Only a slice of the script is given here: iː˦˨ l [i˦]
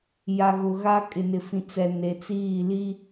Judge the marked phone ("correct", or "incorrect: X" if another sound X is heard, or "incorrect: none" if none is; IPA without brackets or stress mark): correct